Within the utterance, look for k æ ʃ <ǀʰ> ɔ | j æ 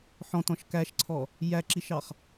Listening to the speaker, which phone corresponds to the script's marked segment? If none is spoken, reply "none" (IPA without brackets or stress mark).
ǀʰ